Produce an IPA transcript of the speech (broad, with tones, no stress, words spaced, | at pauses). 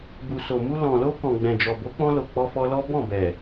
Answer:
bu˨so˨mu˧ lɔ̃˨lo˧ kɔ̃˨ɡ͡bɛ̃˨d͡ʒɔ˨ bo˨˦k͡pɔ̃˧lo˨ k͡pɔ˧fɔ˧lɔ˦ bɔ̃˦˨bɛ˨